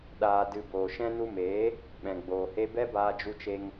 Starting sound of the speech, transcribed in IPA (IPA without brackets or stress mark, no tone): ɗ